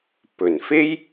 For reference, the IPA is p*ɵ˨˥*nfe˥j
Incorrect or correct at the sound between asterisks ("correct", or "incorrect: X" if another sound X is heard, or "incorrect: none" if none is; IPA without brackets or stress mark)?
incorrect: ɵ˨˩